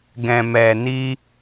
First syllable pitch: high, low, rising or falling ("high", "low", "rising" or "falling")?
low